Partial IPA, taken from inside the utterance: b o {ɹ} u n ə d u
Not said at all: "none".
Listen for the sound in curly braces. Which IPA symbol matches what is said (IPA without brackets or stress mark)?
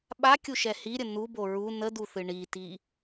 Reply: ɹ